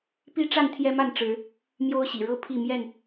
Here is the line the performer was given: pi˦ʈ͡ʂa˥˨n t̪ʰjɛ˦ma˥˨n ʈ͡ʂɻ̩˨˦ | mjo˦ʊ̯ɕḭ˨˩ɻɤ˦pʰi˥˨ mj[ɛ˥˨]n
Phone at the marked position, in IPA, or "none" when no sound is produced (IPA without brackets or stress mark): ɛ˥˨